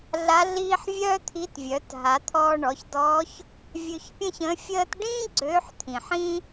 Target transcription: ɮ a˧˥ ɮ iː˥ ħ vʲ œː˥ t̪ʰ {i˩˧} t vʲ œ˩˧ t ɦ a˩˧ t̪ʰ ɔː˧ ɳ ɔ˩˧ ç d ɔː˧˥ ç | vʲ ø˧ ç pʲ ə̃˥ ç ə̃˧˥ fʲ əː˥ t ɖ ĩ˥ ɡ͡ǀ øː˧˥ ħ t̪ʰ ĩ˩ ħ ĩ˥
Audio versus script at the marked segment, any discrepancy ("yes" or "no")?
yes